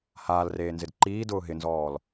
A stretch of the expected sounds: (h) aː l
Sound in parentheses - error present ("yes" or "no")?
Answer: no